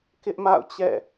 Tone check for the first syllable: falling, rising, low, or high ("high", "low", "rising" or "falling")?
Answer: high